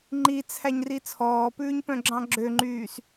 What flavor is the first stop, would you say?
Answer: click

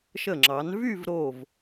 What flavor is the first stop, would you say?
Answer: click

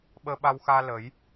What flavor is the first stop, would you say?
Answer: implosive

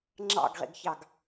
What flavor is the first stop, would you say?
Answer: click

